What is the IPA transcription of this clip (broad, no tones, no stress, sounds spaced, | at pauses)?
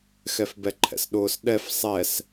x ɛ f b ɛ ǃʰ ɛ̰ s ɗ ʊː s ɗ ɛ f sˤ ɛ s